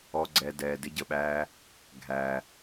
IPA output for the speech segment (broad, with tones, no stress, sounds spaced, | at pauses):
ɔ˨ ɡ͡ǀ ɛ˨ d ɛː˨ d ɪ˧ ɟ ə˨ ɓ æː˧ | ɡʱ æ˨